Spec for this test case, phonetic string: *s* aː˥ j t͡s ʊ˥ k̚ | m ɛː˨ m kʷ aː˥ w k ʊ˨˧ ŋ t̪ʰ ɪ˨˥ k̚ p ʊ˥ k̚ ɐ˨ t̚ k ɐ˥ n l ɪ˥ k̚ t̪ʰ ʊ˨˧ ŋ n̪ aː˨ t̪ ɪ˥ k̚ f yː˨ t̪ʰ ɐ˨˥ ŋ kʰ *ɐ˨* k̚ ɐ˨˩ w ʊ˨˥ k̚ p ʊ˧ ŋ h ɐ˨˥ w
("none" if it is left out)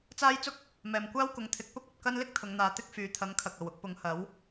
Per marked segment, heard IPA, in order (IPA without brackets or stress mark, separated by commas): t͡s, ɐ˨